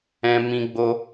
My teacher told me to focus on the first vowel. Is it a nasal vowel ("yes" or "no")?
yes